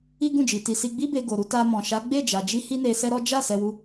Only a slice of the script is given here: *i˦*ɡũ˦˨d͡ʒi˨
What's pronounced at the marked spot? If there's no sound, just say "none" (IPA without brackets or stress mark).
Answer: i˦